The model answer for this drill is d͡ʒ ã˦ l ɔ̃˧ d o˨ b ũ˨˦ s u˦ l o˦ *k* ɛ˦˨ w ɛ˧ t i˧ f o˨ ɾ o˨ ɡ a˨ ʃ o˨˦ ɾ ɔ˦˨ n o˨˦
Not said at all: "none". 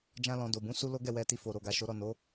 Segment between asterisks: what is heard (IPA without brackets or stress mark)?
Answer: ɡ